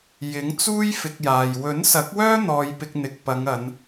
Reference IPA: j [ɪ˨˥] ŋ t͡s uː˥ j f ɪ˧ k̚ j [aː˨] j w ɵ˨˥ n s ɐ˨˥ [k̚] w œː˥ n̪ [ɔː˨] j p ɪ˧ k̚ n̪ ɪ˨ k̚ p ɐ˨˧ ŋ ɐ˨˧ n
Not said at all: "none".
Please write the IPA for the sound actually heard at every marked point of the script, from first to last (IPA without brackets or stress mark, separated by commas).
ɪ˨˥, aː˨, k̚, ɔː˧